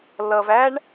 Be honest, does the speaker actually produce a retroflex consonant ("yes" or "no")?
yes